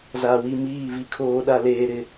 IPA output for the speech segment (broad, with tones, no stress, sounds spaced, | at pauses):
z aː˨ w i˦˨ m iː˦˨ v i˦ kʰ oː˦ ɗ a˦ l eː˦ ɾ ɪ˦